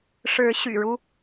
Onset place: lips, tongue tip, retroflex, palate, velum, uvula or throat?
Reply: retroflex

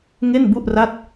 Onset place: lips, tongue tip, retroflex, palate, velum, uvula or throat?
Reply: velum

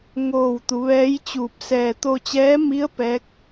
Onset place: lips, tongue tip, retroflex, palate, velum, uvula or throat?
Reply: velum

